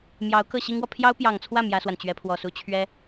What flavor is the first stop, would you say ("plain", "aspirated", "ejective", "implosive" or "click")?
plain